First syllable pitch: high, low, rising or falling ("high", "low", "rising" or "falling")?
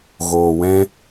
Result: low